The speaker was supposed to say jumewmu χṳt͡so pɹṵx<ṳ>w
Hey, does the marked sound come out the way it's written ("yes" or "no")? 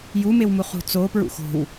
no